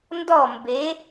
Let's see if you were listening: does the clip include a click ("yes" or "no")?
no